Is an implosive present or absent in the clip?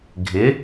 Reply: absent